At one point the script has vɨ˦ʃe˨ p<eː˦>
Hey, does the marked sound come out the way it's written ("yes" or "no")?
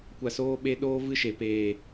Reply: no